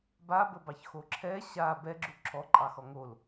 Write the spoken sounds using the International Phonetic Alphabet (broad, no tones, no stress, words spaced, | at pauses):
babəbɑçxo ǁʰɛ ɕa bɛɡ͡ǁu ǁʰɔǃʼɑxɔ ŋol